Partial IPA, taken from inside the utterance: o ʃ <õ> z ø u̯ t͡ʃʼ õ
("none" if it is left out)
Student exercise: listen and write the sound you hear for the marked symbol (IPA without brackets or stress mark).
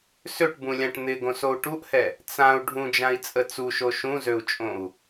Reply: ũ